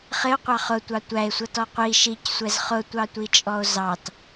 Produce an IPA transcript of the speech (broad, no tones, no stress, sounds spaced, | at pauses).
χ ɪ o̯ qʷ ɑ χ ʊ tʷ ɑ tʷ æ e̯ sʷ ʌ t ɔ qʷ i ʃ i c sʷ ɛ z χ ʊ tʷ ɑ tʷ i t͡ʃʼ ɔ o̯ z ɑ t